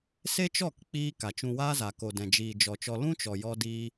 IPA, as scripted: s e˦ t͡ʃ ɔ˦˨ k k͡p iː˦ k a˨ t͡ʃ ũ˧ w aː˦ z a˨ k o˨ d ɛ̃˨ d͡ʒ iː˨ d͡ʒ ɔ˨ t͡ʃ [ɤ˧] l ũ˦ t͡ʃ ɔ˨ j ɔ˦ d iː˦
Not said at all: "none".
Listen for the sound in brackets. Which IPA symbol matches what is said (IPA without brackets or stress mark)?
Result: ɔ˧